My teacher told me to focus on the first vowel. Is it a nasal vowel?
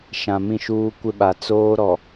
yes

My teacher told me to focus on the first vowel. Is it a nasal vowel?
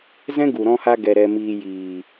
yes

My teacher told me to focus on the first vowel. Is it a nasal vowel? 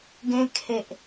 yes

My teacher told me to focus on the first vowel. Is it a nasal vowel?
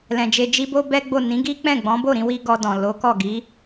yes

